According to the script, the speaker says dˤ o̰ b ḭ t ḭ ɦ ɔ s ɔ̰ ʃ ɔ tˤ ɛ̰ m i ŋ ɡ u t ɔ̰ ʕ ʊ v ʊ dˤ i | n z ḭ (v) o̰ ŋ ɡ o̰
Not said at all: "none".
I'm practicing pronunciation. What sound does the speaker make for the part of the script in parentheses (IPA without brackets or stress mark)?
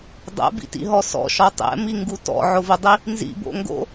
b